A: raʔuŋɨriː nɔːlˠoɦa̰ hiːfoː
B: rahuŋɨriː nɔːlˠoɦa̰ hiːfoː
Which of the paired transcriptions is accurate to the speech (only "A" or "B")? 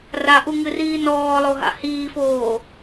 A